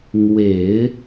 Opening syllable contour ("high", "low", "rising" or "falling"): low